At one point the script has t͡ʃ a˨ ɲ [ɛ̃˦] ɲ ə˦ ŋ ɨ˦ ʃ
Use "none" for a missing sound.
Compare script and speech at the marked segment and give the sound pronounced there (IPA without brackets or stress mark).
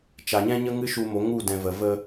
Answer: ɛ̃˦